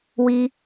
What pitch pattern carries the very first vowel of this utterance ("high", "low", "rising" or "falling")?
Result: high